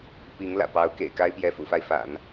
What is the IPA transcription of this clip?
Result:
p i˧˥ ŋ l ä̰˨˩ p ɑ˧˥ ʊ̯ k ḛ˨˩ ɪ̯ k a˥ ɪ̯ p j ɛ˧˥ f ṵ˨˩ f a˥˩ ɪ̯ f a̰˨˩˦ n

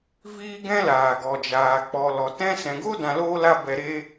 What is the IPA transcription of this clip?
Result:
v iː˦ ɡ ɛ̃˦ l aː˨ ɡ ɔ˨ d͡ʒ aː˨ k͡p ɔ˨ l ɔ˨ t ɛ̃˦ s ɛ̃˨ ɡ o˦ d ã˧ l oː˦ l a˦ b ɛ˧ ɾ eː˦

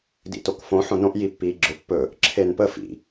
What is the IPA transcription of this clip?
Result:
d ḭ t o k f õ ħ õ n õ ʔ j i pː iː ɡ͡ǁ ʊ pː ɵ | ǁʰ e n p ə f ḭ

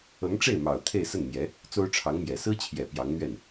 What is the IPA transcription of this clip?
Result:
ɤ˧˥ ŋ ʈ͡ʂ e˥˩ ɪ̯ m ɑ˨˩ ʊ̯ t̪ʰ e˥˧ ɪ̯ s ə˥˩ n m j ɛ˧˥ | t͡s o˥ ʊ̯ ʈ͡ʂʰ ɑ˧˥ ŋ m j ɛ˨˩ s ɹ̩˥ t͡ɕʰ j ɛ˨˩ p j ɑ˧˥ ŋ n̪ ɥ ɛ˥˩ n

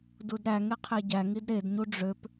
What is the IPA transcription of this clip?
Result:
d u d ɾ æ ŋ e qʰ e ɟ æ ŋ i d ɾ e d ɲ u ɖ͡ʐ ø p

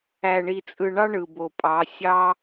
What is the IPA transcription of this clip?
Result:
æ˨ ɳ i˨ t͡sʼ ɯ˨ ɳ ɑ˦ ɳ ɯ˨ b o˨ pʼ ɑ˨˦ sʲ ɑ˦

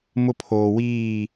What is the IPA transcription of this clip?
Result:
m ʊ˦ pʰ oː˨ w iː˦˨

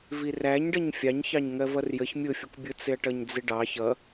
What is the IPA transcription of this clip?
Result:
v i r æ ɲ ɖ ʌ ɲ fʲ ɑ ɲ ç ɑ ɲ ŋ ɜ v ʌ r j ə ç mʲ ʊ fʲ ʊ kʷ bʲ ʊ t͡s ɪ ɐ̯ ʈ ʌ ɲ d͡z ɪ ɖ ɑ ç ʌ

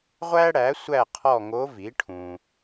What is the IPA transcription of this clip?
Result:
ʁʷ æ˥ ɽ æ˩˥ sʷ æ˦˨ qʰ ɔ˦˨ ŋ o˧˥ v i˩˥ ʈʰ ũ˨

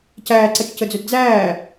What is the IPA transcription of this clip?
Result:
c æː ǀ ɐ t͡ʃ c ə d͡z ɵ d d͡z æː

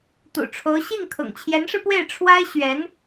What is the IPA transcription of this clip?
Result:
t̪ ṵ˨˩ ʈ͡ʂʰ o˧˥ ʊ̯ ɕ i˥˩ ŋ kʰ ʊ̰˨˩ ŋ t͡ɕʰ j ɛ˧˥ n ʂ ɻ̩˧ p w e˥˩ ɪ̯ ʈ͡ʂʰ w a˥ ɪ̯ ɕ ɥ ɛ˧˥ n

